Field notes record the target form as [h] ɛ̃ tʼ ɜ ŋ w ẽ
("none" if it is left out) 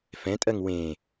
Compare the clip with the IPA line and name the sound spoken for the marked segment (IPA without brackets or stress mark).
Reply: f